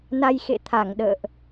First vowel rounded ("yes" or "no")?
no